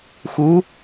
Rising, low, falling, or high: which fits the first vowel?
rising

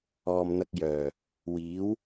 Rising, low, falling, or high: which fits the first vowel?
low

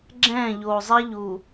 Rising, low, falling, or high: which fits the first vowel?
falling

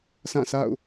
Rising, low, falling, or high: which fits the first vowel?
falling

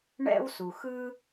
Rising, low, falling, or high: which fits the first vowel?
high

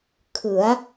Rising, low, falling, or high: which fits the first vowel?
rising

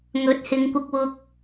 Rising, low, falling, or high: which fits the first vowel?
rising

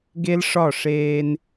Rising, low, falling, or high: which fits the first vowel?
high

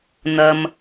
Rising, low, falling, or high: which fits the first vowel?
low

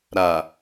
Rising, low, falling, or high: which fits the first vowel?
low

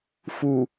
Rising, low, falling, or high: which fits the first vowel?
low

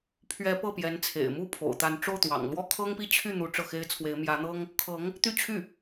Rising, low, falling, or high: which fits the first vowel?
rising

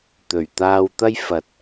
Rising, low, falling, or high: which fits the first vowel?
low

